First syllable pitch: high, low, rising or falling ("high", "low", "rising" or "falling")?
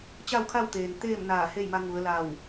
falling